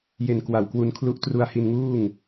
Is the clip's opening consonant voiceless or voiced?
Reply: voiced